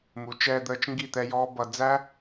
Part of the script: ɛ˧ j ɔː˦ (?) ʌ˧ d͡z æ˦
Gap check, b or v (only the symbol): b